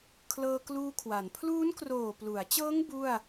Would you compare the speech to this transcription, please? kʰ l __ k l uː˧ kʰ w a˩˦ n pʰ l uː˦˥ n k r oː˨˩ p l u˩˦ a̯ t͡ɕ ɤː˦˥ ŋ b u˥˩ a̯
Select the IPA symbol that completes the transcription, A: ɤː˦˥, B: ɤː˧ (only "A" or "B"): B